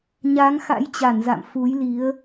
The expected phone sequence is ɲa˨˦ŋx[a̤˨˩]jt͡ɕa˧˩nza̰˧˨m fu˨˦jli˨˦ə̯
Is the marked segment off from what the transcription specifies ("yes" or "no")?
yes